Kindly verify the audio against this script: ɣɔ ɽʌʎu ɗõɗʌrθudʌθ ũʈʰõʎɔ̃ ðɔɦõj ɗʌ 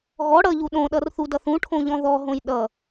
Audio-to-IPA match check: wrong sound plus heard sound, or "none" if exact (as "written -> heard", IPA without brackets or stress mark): none